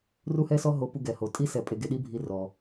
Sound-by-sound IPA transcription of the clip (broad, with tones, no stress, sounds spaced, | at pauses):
r u˥ h ɛ˥ s ɔ˥ ɦ o˧ p u˧ ɡ ɛ˩ h o˩ tʼ i˥ s ɛ˧ pʼ e˧ ɡ e˧ ɗ i˥ bʱ i˧ r ɔ˩